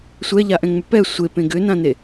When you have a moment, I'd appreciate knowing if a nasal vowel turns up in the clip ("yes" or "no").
yes